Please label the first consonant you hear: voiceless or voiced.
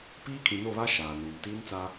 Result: voiceless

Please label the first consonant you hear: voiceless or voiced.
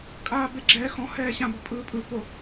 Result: voiceless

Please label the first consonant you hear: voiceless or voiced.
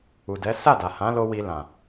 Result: voiced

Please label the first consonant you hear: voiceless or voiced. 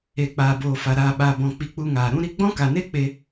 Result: voiceless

